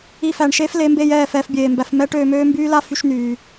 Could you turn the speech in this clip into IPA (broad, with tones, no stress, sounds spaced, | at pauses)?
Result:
i˧ f æ˨ ɳ ʃ eː˦ f l e˨˦ m b eː˧ j ɛː˦˨ f ɛː˧ f bʲ eː˨ m b æ˧ f m ɛː˦ ʈ øː˧ m øː˦ m b yː˦ l a˦ f y˧ ʃ n yː˨